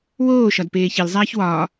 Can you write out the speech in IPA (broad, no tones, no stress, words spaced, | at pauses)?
woːʃɒd peːçilzˤæːç wɒː